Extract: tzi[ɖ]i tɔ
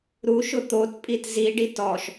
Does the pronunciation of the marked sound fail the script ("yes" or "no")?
no